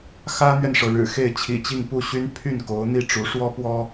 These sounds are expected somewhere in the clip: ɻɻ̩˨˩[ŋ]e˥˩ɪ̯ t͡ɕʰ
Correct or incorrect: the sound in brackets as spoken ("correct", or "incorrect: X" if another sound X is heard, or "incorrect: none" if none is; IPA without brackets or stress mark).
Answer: incorrect: x